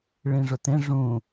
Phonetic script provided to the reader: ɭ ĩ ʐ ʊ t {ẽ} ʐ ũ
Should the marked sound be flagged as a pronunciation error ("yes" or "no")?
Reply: no